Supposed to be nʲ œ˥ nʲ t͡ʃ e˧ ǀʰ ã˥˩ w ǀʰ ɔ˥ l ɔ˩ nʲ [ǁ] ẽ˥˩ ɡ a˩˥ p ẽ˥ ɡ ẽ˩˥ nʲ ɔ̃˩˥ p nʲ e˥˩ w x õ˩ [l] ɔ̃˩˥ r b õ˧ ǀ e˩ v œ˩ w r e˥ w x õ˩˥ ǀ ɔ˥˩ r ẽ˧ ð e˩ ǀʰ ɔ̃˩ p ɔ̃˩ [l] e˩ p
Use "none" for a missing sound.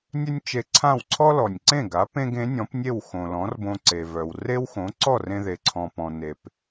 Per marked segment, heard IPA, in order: ǀ, l, n

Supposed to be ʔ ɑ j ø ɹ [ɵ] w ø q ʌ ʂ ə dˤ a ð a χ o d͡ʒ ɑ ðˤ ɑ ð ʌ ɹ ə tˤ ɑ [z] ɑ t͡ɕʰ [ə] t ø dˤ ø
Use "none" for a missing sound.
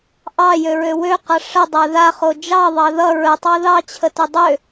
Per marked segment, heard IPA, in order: ø, ð, ə

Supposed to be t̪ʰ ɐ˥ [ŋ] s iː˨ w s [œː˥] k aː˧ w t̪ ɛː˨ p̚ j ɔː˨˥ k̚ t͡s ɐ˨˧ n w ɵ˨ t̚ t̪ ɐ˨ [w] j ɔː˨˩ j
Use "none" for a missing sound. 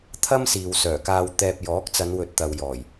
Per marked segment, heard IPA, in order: m, œː˨˩, w

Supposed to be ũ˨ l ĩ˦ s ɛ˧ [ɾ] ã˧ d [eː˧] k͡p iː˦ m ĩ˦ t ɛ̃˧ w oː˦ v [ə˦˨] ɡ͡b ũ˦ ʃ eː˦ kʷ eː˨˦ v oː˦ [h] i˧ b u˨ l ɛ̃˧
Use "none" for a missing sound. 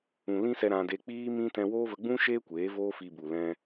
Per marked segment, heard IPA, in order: ɾ, e˧, ə˧, f

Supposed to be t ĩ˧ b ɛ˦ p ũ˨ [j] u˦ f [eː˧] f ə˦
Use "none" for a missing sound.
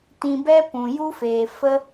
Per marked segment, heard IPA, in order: j, eː˨

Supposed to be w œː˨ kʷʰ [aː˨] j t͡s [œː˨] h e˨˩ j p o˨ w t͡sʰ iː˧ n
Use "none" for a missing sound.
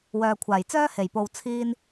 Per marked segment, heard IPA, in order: aː˨˩, œː˥

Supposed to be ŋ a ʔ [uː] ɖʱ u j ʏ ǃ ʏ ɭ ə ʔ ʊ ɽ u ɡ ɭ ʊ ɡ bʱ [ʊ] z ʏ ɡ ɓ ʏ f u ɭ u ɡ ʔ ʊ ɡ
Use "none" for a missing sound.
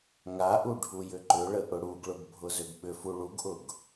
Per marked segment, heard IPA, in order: u, ʊ

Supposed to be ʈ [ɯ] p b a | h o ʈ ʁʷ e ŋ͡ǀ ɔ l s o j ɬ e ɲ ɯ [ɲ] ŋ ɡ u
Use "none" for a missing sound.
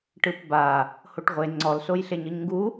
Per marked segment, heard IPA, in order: ɯ, ɲ

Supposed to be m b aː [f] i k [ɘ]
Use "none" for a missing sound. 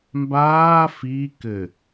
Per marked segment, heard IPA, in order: f, ɘ

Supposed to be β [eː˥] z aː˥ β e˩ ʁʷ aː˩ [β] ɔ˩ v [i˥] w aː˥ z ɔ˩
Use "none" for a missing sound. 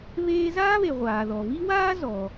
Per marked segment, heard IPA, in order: eː˥, ð, i˥

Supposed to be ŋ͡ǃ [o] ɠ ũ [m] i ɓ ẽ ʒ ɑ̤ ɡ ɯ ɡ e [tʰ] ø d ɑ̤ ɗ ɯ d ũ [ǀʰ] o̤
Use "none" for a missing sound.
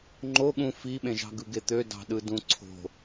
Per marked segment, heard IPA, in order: o, f, t̪, ǀʰ

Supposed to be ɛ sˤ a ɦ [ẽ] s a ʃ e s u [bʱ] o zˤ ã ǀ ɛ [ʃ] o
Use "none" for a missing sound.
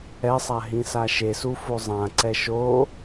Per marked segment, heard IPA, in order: ĩ, f, ʃ

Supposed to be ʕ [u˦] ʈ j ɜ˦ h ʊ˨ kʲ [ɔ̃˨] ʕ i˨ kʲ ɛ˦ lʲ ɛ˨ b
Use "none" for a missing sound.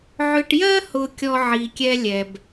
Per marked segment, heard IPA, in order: ʏ˦, ɔ˨

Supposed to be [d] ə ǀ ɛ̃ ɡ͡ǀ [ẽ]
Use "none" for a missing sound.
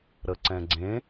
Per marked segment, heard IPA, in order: ɾ, ẽ

